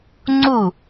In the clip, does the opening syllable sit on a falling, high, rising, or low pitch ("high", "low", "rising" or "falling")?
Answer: falling